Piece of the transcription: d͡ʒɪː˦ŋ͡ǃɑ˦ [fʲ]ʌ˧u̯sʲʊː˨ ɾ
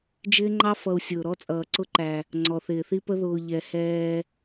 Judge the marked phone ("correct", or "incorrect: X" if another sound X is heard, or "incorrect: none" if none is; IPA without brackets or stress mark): incorrect: f